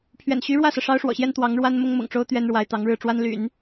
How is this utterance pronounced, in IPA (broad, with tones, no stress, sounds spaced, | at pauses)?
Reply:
pʰ ɥ ɛ̰˨˩ n ɕ y˧˥ ɻ w ä˥˩ s ɤ˩ ʂ ɑ˥ ʊ̯ ʂ w ɔ̰˨˩ ɕ j ɛ˥ n t̪ w ɑ˧˥ ŋ ɻ w a˥ n m ʊ˥ ŋ m ʊ̰˨˩ ŋ ʈ͡ʂ o˥ ʊ̯ t̪ ɥ ɛ˥ n ɻ w a˧˥ ɪ̯ t̪ ɑ˧˥ ŋ ɻ ɻ̩˥˩ ʈ͡ʂ w a˥ n l y̰˨˩˦ n